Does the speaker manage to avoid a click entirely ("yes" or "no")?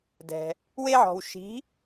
yes